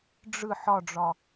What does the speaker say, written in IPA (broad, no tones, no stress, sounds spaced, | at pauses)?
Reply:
ɖ͡ʐ ɯ ħ ɒ ɖ͡ʐ ɒ